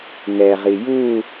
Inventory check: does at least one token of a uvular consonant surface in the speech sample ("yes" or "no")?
yes